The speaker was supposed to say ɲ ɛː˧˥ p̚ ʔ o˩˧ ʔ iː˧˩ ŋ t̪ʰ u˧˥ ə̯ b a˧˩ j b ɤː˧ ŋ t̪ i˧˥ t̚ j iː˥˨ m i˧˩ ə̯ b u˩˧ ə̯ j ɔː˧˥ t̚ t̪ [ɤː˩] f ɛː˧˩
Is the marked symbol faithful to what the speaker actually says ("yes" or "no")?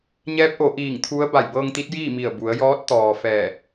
no